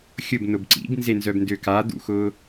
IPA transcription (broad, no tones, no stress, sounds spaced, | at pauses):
xʲ ʊ b n ʊ b ǀ ḭ b n z e n z œ b n d ø k a d̪ ṵ x ʊ